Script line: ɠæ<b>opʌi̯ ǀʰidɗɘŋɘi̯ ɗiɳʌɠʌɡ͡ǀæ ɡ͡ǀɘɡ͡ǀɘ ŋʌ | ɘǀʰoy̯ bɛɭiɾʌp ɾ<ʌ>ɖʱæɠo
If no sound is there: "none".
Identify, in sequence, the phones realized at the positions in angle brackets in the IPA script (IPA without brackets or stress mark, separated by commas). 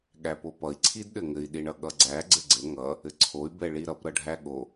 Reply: p, ʌ